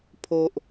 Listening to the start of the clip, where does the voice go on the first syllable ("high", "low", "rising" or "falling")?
high